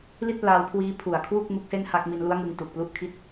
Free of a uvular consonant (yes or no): yes